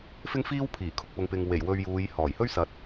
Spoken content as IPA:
f ɪ˥ ŋ f iː˥ w pʰ iː˨˩ kʰ ʊ˨ k̚ p ʊ˨˧ ŋ p ɪ˨ ŋ w e˨˩ j w ɵ˨ ɥ j uː˨˧ j h ɔː˨˩ j h ɵ˥ ɥ s ɐ˨˥ t̚

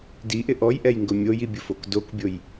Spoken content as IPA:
d i ʔ ɪ ʔ ɔ j ʔ ɛ j ŋ ɡ ʊ mʲ o j i bʲ ʊ f o k d o k bʲ o j

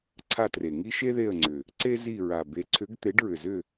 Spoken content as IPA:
ǀʰ a˦˨ t r e˨˩ ŋ i˥ ʃ e˥ ð e˦˨ ə̯ ŋ͡ǀ ʏ˨˩ | ǀ e˥ z i˦˨ ɹ a˨˩ b e˨˥ ǀʰ ʏ˨˥ ɡ t̪ e˨˥ ɖ ɹ ʏ˨˩ z ʏ˦˨

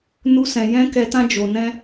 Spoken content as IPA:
n u˧ s ɛ̃˨ j ɛ̃˦ k ɛ˧ t ã˦ d͡ʒ o˨ n ɛ̃˦

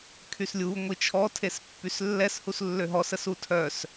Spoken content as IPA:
kʰ y s lʲ u ŋʷ i t͡ʃʰ ɔ tʰ e s pː y s lː ɛ s h u s lː ø ɦ ɔ s ə s u tʰ œ s

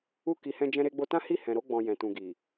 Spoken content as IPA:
u˦ k i˧ h ɛ̃˦ d͡ʒ ɛ̃˧ ɾ e˧ ɡ͡b o˧ t ã˦ h i˦˨ h ɛ̃˨ ɾ o˧ ɡ͡b ɔ̃˨ j ɛ̃˨ t ũ˨ ɡ i˨

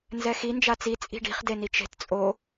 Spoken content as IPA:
n z ɛ x i n d͡ʒ a t͡s i t͡sʼ i̤ ɖ i̤ χ d e n i t͡ʃ e̤ t t͡sʼ o

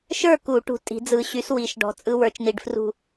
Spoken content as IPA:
ʃ ə˞˥˨ k u˨˩˦ ʈ ṳ˧˩ tʼ i̤˨˩˦ d͡z ɯ˨˩˦ ɕ y˨˥ s w i˨˩˦ ʃ ɖ ɔ̤˨˥ t͡sʼ ɯ˦˥ w ə˞˨˥ t͡ʃ n i˧˩ ɖ f r ṳ˥˨

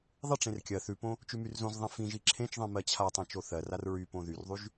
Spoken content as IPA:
ðˤ ɪ ʈ͡ʂ ẽ r kʲ ɜ θ ʉ p õ | t͡ʃ ʉ m y r z õ z ðˤ ĩ f ĩ ʒ i ǁʰ ẽ t͡ʃ ðˤ ĩ m ɜ t͡ɕʰ a tˤ ẽ t͡ʃ o θ ɜ r a r ɹ y p õ ð y r ðˤ y ʒ

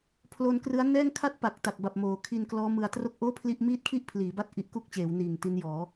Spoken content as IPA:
pʰ l o˧ n k r ɯ˦˥ a̯ n ɛː˥˩ ŋ kʰ a˥˩ t̚ p a˨˩ k̚ t a˨˩ k̚ b a˨˩ p̚ m oː˩˦ kʰ i˧ n k l ɔː˦˥ m ɯ˧ a̯ t r o˥˩ k̚ ʔ oː˥˩ pʰ l i˥˩ ʔ m iː˥˩ t̚ kʰ i˥˩ ʔ pʰ l iː˩˦ b a˦˥ t̚ ʔ i˦˥ ʔ k u˥˩ k̚ t͡ɕ eː˩˦ w n iː˨˩ ŋ t i˦˥ n j ɔː˩˦

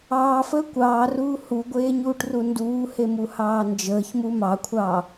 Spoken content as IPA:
ɑː f əː kʷ ɑː r uː h u ɡʷ eː ɲ uː ʈ r u n d uː h e m u h ɑː n d͡ʒ əː ç m u m ɑ kʷʰ ɑː

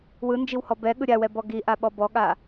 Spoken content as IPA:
w ɯ n d͡ʒ i w h ɔ b ɛ ɠ ɯ ɾʲ a w ɛ b ɔ ɡ i ʔ a ɓ ɔ b ɔ ɠ a

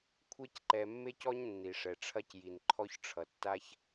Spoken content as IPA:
kʷʰ e˦ c ǃ ɛ˨ mː e˥ c ɔ˥ ɲ nː i˩ ʂ ɛ˩ ʈ͡ʂʰ ɐ˦ c j i˩ n ǃʰ ɔ˥ ç ʈ͡ʂʰ ʌ˩ tː a˥ ç

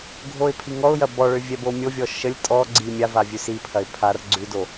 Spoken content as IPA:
ɡʱ o ɪ̯ pʰ i ŋ ɔ ʊ̯ j ɐ b ɔ ɭ ʏ vʲ ɛ b o mʲ o vʲ ɔ ʃ ə lʲ tʼ ɔ ɡ͡ǀ i mʲ a v a vʲ ʉ s i pʰ ɐ ɪ̯ pʰ a r ɡ͡ǀ ʉ d o

